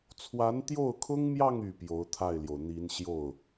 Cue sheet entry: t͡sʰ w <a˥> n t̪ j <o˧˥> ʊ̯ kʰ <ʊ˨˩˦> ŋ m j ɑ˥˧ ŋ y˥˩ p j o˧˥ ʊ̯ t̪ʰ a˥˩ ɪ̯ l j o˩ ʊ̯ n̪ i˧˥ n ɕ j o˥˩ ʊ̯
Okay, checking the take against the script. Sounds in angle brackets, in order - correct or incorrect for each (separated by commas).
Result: incorrect, incorrect, incorrect